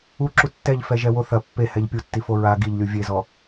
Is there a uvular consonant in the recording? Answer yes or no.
no